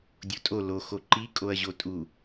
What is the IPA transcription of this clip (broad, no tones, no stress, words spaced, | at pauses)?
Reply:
dʲotʼo lo xoǃi kʼoɐ̯ʑotʼu